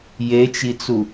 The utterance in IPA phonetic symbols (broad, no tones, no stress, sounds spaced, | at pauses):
j e t͡ʃ i t͡s u